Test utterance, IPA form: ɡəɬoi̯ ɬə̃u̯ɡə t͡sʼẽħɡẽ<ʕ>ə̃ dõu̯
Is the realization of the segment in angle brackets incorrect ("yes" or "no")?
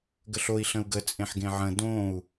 no